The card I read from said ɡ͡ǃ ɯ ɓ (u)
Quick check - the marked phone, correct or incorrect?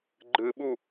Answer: correct